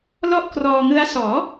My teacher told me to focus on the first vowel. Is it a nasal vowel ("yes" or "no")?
no